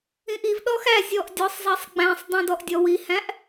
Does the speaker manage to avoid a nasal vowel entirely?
no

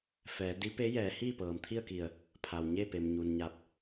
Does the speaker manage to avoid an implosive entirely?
yes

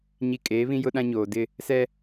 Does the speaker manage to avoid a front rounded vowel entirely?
yes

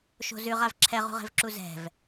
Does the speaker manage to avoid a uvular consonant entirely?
no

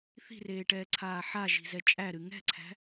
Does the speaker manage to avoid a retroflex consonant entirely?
no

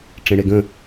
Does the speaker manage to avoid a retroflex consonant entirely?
no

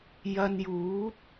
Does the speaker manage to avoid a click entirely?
yes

